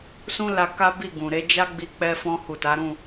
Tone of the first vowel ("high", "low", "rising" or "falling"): high